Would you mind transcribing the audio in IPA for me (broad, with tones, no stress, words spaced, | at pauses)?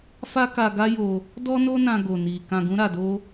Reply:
fa˦ka˧ɡa˦jo˧ | dɔ˦no˦nã˧ ɡo˧ni˧ kã˧ɡũ˦ɾa˧do˦